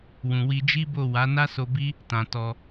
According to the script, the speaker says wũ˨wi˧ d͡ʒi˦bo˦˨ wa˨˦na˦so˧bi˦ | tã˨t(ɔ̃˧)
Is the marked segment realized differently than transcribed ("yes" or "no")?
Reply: yes